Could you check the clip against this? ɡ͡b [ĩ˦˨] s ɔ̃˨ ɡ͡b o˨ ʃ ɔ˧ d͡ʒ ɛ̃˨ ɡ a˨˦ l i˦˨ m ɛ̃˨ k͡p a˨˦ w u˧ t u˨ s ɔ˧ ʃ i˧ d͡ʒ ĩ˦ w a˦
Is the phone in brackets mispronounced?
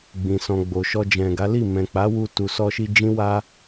yes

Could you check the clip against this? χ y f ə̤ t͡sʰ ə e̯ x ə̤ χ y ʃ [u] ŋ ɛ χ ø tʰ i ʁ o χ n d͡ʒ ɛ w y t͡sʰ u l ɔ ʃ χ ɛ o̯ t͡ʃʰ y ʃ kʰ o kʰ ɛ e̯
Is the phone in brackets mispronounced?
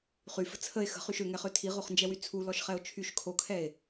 yes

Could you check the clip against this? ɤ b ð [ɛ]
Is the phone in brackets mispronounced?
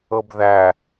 yes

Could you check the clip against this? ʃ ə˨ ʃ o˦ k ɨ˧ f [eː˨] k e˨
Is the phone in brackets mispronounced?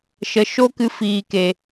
yes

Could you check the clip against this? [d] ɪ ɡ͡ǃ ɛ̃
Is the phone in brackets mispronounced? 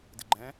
no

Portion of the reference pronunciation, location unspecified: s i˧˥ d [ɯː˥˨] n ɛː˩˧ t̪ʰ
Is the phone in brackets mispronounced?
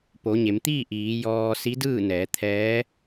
no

